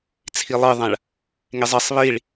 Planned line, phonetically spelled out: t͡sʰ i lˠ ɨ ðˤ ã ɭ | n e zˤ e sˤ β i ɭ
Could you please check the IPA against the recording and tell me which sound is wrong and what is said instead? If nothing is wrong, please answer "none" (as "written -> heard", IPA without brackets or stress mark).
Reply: n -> ŋ